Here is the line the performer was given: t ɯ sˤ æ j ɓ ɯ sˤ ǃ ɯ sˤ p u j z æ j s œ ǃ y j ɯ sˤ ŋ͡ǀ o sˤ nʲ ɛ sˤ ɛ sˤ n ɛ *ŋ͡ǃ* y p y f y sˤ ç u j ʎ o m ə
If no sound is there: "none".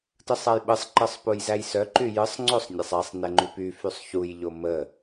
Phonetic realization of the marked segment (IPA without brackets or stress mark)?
ŋ͡ǃ